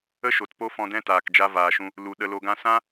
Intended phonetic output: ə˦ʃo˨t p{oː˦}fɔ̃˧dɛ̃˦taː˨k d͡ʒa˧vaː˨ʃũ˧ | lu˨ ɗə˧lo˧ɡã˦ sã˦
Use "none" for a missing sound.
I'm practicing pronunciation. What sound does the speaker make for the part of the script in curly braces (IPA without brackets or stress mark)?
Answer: o˦